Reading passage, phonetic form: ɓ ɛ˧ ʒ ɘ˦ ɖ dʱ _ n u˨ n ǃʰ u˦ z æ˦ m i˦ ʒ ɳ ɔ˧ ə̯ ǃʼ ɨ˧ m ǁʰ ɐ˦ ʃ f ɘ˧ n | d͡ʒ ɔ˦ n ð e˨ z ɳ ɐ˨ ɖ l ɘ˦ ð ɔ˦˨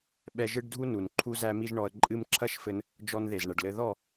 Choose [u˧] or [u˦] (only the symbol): u˦